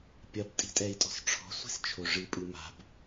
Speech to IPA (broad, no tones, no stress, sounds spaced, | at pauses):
pʲ ɐ b tʼ i̤ tʼ ɛ i̯ tʼ ɔ̤ s ʈ͡ʂʰ ɔ̤ sʷ i̤ s t͡ʃʰ o ʐ ɨ pʼ ɨ m a̤ b